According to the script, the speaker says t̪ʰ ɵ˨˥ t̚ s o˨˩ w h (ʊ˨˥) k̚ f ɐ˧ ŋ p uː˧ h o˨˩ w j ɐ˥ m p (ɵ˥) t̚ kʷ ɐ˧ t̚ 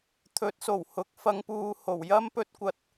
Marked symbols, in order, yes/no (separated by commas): yes, yes